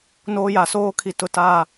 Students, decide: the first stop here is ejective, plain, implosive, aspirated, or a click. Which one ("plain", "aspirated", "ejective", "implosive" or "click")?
aspirated